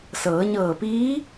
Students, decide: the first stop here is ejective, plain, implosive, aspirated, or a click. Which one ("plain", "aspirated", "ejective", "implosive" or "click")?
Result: plain